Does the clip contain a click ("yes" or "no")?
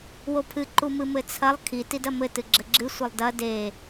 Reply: yes